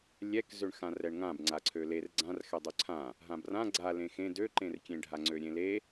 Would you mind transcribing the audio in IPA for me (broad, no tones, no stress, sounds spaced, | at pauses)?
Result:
lʲ ɛ k z ø ɳ x ã r ɛ ɳ ŋ ã b ŋ͡ǀ a ǀʰ ø l e r ɡ͡ǀ ã r x ɛ dˤ ø ǀʰ ã | ɦ ã b r ã ɡ͡ǀ a l ẽ x ẽ d ø ǃ ẽ r kʲ ẽ ɖʱ a ŋ͡ǀ ø ɾʲ ẽ l e